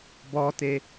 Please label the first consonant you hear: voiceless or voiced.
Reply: voiced